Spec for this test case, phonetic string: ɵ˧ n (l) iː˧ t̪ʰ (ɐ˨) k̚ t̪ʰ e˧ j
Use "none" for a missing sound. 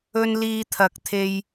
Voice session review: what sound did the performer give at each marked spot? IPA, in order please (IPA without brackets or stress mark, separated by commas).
l, ɐ˨